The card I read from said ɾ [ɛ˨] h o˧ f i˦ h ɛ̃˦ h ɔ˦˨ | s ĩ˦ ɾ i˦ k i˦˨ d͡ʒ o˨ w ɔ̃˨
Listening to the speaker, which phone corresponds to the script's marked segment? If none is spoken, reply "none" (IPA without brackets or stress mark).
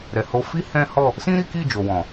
ɛ˨